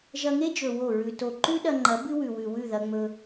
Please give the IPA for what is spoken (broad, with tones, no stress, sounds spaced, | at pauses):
ʒ ɐ˧ ŋ e˦ d͡ʒ ɵ˨ w o˦˨ ɹ ʉ˧ t o˨ ǃ ʉ˦ ɗ ɐ˧ ŋ͡ǃ ɐ˨˦ b ɨ˦ w ʉ˨ w ʉ˨ w ʉ˦˨ ð ɐ˧ ŋ͡m ɵ˧